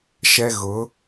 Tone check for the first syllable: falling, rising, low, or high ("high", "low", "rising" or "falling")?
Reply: high